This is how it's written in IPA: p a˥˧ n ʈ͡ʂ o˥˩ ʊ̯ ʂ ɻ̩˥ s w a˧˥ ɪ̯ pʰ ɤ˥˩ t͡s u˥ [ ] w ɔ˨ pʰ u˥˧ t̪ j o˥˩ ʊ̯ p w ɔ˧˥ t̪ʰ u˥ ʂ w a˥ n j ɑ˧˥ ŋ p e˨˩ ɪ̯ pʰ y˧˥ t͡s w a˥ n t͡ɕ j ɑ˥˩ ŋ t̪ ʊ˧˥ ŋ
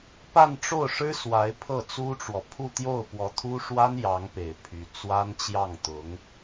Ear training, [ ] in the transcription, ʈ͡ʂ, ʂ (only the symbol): ʈ͡ʂ